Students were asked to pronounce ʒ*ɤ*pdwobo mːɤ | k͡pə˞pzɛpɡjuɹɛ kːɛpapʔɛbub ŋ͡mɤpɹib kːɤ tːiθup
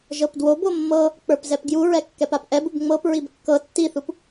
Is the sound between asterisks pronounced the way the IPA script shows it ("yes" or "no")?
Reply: yes